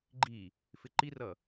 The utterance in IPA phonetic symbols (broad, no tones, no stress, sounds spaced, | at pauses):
ɡ͡ǃ i | f ɪ ǃ i r ʌ